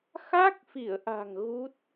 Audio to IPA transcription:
x a˦˥ k̚ f i˧˩ ə̯ ʔ a̤˨˩ ŋ ɣ u˦˥ t̚

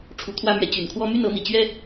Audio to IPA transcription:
ʈ͡ʂʰ u˧˥ t̪ʰ w ä˥ m ɥ ɛ˧˥ t͡ɕ y˨˩ n kʰ w ɔ˥ m y˥˩ n ɤ˧˥ n̪ i˨˩ t͡ɕ ɥ ɛ˥

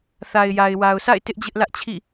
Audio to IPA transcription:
θ a˨ ɪ̯ j a˨ ɪ̯ w a˨ ʊ̯ sʰ a̰˦˨ ɪ̯ t ɪ˦ ʔ d͡ʑ ɪ˦ ʔ l ä˦ ʔ t͡ɕʰ ḭ˦˨

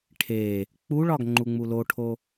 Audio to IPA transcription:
ʈʰ e | k͡p u ɭ ɒ ɡ ŋ͡ǃ u ŋ͡m u l o ʈʰ o

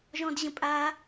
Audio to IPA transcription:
ʒ ɔ̃ d ʑ ə̃ pʼ a

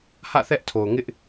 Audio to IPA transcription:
h ä̰˦˨ θ ɛ˦ ʔ tʰ o˨ ʊ̯ ŋ ɪ˦ ʔ

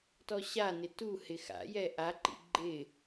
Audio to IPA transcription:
t ɔ ɕ a n ɪ t u h ɪ x a̰ j ɛ ʔ a ǃ ḭ ɡ͡ǃ ɪ

